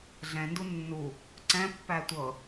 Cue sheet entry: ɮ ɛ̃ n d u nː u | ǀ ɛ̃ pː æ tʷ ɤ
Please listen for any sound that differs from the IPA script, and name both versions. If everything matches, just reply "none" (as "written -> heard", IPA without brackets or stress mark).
none